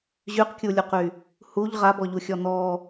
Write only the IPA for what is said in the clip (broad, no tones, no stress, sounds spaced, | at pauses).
ʑ y q kʲ u lʲ u q y | h u ʎ ʁ a b ɔ ʎ u xʲ ɔ n ɔ